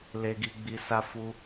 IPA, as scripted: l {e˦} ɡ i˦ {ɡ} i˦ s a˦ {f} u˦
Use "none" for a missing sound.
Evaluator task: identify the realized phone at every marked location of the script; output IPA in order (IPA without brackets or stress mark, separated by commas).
e˦, ɡ͡b, f